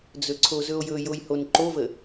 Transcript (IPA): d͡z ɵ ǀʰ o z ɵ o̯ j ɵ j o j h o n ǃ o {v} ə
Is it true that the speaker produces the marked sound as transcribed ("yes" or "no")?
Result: yes